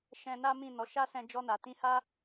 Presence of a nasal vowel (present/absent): present